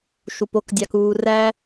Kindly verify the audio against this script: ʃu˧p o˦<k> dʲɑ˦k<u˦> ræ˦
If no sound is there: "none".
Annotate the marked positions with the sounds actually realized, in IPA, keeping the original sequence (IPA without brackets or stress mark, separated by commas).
k, uː˦